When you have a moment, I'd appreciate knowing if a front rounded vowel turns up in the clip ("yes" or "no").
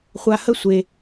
no